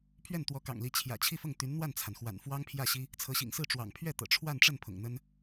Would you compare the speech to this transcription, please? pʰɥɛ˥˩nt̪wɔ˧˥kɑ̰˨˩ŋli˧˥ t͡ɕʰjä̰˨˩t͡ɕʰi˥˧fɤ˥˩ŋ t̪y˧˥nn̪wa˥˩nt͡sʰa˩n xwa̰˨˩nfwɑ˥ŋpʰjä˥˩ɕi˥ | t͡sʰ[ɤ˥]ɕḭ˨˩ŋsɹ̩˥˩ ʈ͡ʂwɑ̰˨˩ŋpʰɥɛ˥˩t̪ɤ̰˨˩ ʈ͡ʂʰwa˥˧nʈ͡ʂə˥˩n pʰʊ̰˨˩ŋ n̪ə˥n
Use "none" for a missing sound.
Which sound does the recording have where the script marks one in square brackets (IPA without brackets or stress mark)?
ɤ˧˥